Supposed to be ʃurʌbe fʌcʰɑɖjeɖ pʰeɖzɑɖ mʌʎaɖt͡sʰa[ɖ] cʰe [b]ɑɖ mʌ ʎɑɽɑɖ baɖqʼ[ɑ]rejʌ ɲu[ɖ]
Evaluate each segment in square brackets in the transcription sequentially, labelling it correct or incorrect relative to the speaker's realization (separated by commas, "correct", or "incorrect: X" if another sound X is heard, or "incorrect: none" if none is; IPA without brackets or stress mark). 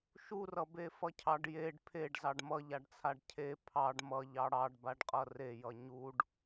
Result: correct, incorrect: pʰ, incorrect: ʌ, correct